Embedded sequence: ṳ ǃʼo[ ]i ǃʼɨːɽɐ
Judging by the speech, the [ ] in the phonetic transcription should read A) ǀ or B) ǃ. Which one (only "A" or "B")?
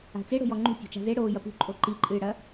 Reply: B